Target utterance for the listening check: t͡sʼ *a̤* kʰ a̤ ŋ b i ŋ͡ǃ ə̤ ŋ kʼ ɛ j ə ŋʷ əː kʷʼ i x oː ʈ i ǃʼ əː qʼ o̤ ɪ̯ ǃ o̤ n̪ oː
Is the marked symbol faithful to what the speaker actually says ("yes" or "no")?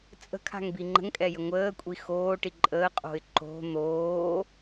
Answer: no